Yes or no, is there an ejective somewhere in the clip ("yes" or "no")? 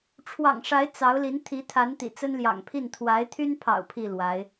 no